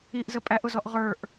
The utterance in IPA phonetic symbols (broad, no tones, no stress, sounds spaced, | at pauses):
i ʔ z ə pʼ æ ʔ ʊ z ɔ ʔ ʁ ə˞ ʔ